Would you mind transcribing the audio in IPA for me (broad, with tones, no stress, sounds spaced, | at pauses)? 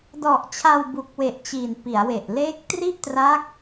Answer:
d ɔ˨˩ ʔ t͡ɕʰ a˧ w b u˨˩ k̚ w e˨˩ ʔ t͡ɕ i˨˩ n p i˩˦ a̯ w e˨˩ ʔ l eː˦˥ k̚ t r i˥˩ ʔ t r a˦˥ k̚